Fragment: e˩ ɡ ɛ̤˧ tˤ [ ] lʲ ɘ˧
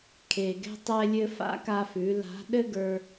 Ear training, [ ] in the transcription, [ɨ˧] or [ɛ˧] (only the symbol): ɛ˧